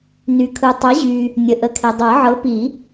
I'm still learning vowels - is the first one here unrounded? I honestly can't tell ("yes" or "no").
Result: no